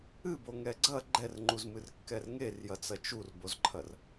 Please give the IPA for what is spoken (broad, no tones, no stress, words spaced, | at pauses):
ɨboŋɛ ɡ͡ǀɐ ɡ͡ǃɛrŋ͡ǃuzmɨrkːɛr ŋerjɐt͡sɐ t͡ʃurbozǃʰɐr